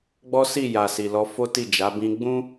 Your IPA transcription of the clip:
ɡ͡bɔ˦si˦˨ ja˨si˨lɔ˧ fo˦ti˦˨d͡ʒa˨˦ bĩ˧ɡ͡bũ˦

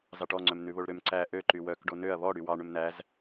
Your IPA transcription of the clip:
zɑʈɔŋ͡ǀœm nʉβoɭɾøm ǀæ ʔø ǃywœkɖo nøɐ̯ βɔ ɽywɑ ɳɵmnæz

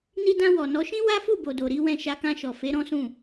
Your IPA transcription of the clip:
ni˧dã˧wɔ˨nɔ˨˦ ʃĩ˦wa˦fu˦˨ bo˨do˨ ɾi˨˦ wɛ̃˧ʃa˧ kã˧ʃɔ˨ fe˨˦ɾɔ̃˦sũ˦˨

